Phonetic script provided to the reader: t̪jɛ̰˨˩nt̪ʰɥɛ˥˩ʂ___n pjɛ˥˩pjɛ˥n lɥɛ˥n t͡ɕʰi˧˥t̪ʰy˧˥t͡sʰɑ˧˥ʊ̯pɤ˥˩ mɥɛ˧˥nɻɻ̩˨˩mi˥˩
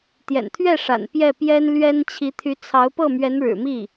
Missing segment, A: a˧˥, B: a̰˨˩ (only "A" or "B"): B